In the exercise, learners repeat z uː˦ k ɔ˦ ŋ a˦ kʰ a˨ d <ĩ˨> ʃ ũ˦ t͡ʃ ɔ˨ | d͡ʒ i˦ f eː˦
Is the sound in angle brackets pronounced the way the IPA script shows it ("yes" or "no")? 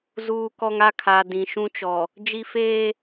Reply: yes